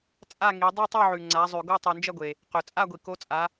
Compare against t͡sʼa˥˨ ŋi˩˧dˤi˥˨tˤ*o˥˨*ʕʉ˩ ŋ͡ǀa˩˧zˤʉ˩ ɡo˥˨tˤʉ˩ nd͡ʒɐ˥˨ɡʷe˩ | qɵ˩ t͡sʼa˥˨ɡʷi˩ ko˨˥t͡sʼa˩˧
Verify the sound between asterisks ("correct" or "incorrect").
correct